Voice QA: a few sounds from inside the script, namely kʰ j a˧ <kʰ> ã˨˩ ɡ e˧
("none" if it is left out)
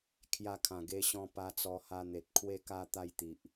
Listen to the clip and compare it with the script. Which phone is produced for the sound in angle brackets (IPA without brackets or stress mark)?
kʰ